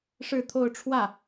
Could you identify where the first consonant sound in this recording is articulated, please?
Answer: retroflex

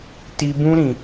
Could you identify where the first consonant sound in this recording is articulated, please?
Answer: alveolar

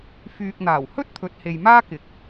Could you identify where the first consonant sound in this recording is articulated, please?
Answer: labial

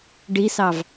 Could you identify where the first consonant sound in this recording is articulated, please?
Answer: retroflex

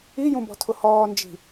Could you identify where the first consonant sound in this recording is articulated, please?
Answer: palatal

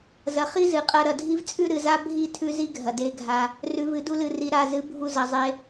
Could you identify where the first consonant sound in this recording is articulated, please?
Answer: alveolar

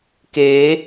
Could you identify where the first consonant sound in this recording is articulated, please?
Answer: velar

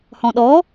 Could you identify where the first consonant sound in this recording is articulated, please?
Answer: glottal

